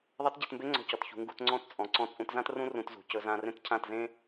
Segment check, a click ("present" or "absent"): present